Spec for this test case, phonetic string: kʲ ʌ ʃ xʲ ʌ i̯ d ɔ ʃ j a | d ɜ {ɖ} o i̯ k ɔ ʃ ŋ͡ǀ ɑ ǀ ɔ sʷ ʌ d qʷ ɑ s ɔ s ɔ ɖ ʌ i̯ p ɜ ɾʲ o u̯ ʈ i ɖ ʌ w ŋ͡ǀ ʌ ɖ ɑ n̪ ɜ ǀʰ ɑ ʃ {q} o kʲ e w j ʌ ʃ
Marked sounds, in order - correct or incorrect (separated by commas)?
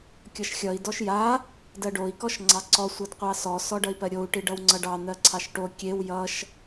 correct, incorrect